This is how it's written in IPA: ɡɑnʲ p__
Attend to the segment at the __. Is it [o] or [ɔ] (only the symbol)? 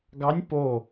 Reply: o